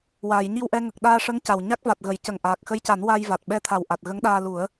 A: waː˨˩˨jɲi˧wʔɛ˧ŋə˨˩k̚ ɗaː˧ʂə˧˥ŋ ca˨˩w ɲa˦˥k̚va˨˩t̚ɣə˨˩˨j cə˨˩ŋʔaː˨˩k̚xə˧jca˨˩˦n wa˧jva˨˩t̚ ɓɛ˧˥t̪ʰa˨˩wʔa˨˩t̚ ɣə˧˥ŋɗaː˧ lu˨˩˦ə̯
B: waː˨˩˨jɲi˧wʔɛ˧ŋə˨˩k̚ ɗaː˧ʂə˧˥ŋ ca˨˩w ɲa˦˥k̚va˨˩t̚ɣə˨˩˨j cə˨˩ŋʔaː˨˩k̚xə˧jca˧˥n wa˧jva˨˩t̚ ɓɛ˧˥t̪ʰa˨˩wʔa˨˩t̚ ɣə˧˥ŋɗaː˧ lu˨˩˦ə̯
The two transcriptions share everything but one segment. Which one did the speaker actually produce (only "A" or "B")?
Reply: A